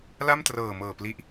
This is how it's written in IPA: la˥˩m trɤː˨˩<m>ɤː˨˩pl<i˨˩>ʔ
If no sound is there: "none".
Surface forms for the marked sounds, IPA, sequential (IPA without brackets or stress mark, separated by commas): m, i˦˥